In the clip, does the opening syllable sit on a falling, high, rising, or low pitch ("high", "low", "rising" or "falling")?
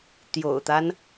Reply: low